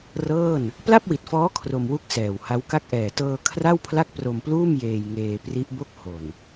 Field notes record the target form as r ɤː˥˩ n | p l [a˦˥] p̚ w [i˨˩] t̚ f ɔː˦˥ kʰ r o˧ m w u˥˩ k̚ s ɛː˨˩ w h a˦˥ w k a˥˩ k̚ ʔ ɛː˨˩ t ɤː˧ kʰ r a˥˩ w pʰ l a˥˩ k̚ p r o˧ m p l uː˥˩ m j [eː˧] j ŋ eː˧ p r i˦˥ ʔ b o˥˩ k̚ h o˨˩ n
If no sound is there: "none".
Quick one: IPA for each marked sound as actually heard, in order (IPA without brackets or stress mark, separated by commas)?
a˥˩, i˨˩, eː˧